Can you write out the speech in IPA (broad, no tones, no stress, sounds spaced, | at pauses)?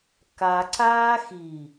k a ǀ aː x i